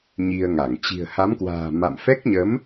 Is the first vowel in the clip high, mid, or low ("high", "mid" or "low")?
high